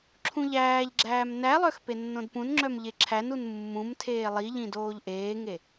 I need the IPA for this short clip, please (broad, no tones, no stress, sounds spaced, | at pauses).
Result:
ǁʰ ũ ʎ æː ʎ ɡ͡ǁ æː m n æ lˠ œ x p e nː õ d p ũ n ŋ͡ǁ œ m ʎ e ǁʰ æ n u n mː ũ m tʰ eː lˠ i ʎ ĩ d oː ʎ ʔ eː ŋ e